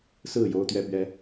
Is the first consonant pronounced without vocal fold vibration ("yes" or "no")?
yes